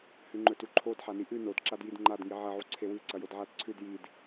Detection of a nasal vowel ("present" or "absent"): absent